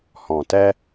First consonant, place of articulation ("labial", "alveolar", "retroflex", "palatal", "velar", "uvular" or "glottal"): glottal